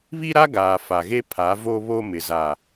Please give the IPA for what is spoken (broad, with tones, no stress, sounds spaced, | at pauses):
β i˦ ɾ a˦ ɡ aː˨ f a˨ ɣ e˦ pʰ a˨˦ v o˦ β o˦ m ɪ˨ z a˨